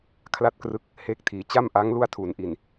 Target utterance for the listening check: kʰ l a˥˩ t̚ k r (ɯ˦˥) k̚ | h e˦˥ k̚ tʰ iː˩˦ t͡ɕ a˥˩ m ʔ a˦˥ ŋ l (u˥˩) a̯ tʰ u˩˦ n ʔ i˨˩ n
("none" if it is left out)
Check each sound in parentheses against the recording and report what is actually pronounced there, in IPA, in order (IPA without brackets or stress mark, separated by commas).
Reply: ɯ˦˥, u˥˩